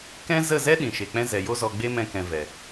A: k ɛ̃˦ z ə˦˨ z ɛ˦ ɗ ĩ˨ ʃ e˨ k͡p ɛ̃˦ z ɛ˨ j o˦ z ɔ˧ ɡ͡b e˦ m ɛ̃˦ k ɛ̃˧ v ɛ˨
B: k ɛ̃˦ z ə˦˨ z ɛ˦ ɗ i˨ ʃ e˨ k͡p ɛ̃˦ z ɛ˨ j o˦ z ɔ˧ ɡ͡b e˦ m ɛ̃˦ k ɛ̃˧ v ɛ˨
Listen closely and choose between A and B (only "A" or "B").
A